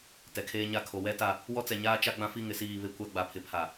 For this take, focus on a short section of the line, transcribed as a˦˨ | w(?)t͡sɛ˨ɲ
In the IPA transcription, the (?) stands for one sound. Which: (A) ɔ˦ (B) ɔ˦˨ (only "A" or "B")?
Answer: A